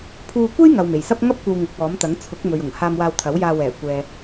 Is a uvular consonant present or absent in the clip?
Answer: absent